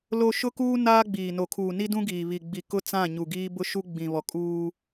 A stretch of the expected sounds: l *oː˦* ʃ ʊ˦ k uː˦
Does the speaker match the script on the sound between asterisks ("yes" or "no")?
no